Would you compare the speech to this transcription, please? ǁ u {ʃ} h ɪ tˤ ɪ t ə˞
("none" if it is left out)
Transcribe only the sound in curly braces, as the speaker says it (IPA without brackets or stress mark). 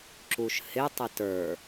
ʃ